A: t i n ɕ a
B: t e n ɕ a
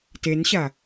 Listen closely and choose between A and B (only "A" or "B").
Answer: B